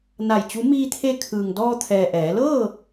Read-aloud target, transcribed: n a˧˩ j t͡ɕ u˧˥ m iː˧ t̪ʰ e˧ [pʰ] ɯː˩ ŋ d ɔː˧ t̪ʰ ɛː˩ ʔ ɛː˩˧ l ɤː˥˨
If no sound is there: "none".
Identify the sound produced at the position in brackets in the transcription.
kʰ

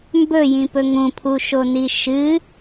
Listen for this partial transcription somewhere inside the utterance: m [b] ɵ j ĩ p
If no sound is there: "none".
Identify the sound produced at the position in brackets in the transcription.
b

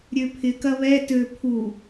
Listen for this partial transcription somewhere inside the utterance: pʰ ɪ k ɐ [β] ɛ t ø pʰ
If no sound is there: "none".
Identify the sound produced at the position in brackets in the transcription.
β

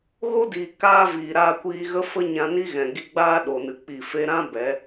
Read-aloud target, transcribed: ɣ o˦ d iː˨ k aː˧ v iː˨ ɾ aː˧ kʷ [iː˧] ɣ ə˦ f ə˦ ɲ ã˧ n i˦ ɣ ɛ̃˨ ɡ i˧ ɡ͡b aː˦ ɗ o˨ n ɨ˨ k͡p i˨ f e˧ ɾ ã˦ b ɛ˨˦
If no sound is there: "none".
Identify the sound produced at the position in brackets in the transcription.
iː˧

